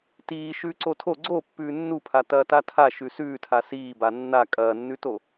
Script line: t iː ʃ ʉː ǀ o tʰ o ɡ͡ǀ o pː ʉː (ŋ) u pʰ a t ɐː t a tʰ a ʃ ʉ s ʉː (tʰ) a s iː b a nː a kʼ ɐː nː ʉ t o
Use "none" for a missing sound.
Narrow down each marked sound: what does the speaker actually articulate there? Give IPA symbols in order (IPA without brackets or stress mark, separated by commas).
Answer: nː, tʰ